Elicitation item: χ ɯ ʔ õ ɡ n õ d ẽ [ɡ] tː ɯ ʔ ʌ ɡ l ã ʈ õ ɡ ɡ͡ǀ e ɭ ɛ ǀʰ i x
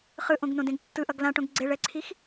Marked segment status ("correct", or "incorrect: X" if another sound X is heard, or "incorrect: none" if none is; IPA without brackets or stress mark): correct